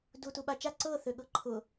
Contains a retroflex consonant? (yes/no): no